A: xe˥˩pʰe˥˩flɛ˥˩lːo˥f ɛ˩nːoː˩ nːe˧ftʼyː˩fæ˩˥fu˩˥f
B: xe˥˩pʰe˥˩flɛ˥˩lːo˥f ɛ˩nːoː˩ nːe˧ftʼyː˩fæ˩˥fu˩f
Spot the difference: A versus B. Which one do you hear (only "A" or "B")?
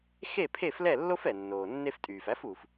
B